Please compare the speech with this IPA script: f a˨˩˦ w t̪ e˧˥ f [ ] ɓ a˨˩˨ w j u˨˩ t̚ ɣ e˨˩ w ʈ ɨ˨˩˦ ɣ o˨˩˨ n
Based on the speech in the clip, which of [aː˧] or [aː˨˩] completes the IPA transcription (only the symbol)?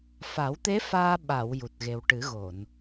aː˧